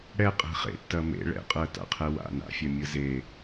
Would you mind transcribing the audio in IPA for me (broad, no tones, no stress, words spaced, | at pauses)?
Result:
ɽɛqʼɛ̤ χḛtːɐ mḛ ɭɛ̰qʼɜta̰qʰɛ wa̰ na̰fʲɐmʲɯ ze